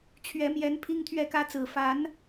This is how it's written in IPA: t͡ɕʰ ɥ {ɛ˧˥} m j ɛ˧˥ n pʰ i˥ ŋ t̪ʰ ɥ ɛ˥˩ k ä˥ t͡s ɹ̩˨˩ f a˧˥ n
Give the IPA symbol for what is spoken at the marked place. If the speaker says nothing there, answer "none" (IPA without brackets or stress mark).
ɛ˧˥